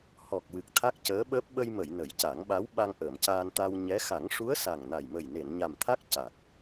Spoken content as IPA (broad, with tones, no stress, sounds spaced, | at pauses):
h ɔ˨˩ k̚ w ɨ˨˩ k̚ t̪ʰ a˦˥ k̚ c əː˧˥ ɓ əː˦˥ p̚ ɓ ə˧ j m ə˨˩˨ j n ə˨˩˦ j c a˨˩˦ ŋ ɓ a˧˥ w ɓ a˧ ŋ ʔ əː˨˩˨ m c aː˧ n t̪ a˧ w ɲ ɛ˧˥ x a˨˩˦ ŋ ʂ u˧˥ ə̯ s a˨˩ ŋ n a˨˩ j m ə˨˩ j n e˨˩˨ n ɲ a˨˩ m t̪ʰ a˦˥ k̚ c a˨˩ k̚